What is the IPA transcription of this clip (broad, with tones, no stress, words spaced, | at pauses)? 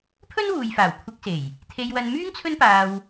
pʰɵ˥nwuː˨jfaː˨˩w kʷʰɪ˧k̚se˨˩j | t̪ʰe˧jwɐ˧n myː˥ŋt͡sʰɵ˥npaː˧w